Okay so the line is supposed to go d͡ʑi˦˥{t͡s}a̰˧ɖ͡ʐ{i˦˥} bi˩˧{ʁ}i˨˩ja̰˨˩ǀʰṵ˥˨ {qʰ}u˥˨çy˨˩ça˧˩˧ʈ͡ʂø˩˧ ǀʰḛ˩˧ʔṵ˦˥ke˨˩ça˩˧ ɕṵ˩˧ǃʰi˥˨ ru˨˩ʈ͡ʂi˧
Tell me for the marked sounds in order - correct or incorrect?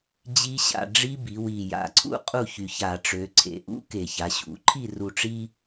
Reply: incorrect, correct, incorrect, incorrect

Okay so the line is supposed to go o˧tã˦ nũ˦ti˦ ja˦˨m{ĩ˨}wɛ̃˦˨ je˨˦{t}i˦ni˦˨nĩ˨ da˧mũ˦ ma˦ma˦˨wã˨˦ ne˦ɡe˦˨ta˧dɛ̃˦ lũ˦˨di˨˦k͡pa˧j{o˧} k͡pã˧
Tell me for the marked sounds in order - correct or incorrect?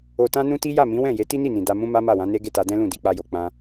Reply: incorrect, correct, incorrect

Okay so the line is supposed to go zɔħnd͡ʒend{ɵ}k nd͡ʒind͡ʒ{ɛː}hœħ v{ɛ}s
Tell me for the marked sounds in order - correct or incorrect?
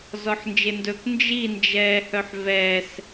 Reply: correct, correct, correct

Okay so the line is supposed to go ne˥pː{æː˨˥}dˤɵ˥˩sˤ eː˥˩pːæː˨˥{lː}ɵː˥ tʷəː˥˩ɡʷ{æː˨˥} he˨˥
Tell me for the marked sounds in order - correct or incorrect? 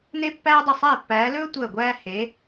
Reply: incorrect, incorrect, incorrect

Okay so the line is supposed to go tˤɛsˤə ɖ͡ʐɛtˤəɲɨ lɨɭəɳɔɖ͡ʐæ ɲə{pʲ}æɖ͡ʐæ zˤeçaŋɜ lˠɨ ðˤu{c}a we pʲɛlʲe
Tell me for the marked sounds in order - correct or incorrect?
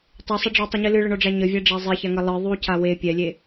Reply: incorrect, correct

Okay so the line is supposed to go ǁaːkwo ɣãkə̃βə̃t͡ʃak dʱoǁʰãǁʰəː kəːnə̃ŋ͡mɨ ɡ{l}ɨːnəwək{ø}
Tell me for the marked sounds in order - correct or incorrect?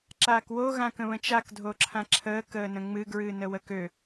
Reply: incorrect, correct

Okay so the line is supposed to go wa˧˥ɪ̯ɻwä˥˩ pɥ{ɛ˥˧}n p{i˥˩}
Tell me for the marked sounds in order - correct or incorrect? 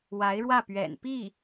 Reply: incorrect, correct

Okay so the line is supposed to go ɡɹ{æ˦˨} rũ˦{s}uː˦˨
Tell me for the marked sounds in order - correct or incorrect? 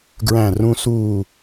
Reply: incorrect, correct

